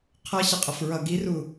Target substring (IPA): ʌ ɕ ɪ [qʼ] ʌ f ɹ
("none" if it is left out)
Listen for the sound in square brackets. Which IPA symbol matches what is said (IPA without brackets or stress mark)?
qʼ